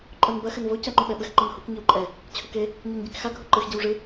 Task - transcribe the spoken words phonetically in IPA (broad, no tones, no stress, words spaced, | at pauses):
ǃʼonbɐ xɘnvo cɐ ŋ͡ǃuɓɛɓɘx ŋ͡ǃɔnhuk ɲiwǃʼɛ | t͡ɕʰuke | ɲonɟikxa ɡʱuǃɨx ɟiwʐɨ